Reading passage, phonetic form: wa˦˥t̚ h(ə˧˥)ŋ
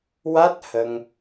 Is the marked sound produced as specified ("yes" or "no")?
no